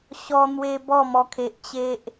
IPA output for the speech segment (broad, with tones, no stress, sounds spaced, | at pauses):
ɕ ɔ˧ n̪ w e˧ b ɔ˥˧ m ɔ˧ kʰ e˨ ʔ t͡ɕ e˦ ʔ